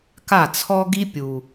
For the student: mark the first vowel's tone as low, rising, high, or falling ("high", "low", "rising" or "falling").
falling